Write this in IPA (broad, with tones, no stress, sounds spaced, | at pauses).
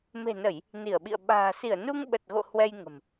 m e̤˨˩ n ə˧˩˨ j | n i˧˩ ə̯ ɓ ḭ˧˨ ə̯ ɓ a̤ː˨˩ s i˧˩ ə̯ n u˧ ŋ ɓ ə˨˩ t̚ ɣ o̰˧˨ h w ɛ˧ j ŋ ə̤˨˩ m